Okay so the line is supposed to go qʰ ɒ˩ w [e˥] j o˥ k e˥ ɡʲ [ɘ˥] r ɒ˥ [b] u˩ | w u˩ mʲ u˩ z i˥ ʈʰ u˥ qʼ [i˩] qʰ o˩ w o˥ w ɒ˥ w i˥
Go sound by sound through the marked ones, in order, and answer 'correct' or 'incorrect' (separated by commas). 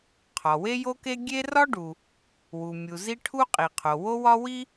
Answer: correct, incorrect, incorrect, correct